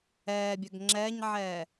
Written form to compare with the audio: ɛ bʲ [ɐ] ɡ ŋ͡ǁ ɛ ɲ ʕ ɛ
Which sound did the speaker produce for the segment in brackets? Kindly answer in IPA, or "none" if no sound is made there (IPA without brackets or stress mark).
ə